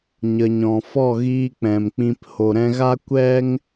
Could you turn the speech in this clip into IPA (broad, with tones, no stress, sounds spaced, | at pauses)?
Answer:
ɲ ə˨ ɲ ɔ̃˨ f ɔ˦˨ ɣ iː˧ k͡p ɛ̃˨ m k͡p ĩ˧ p h o˨ ɾ ɛ̃˧ ɣ a˦ kʷ ɛ˦ ŋ